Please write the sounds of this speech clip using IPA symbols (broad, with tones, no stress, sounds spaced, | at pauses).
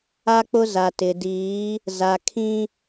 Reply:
a˦ k͡p ʊ˦ z a˨ t ɪ˨ d iː˨˦ | z a˨ kʰ ĩ˦